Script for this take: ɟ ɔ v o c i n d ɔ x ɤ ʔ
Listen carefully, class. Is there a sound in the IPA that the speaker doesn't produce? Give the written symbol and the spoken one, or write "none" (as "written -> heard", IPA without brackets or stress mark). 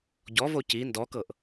x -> k